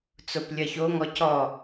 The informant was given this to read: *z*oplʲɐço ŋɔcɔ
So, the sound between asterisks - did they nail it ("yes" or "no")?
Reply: no